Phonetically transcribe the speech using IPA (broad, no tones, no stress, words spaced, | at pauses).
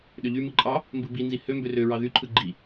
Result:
ɗøʎymɯ ǃʼɑ | mbɯbinzi hømbø røɹɑ ðyǃʰɯ ɡ͡ǃi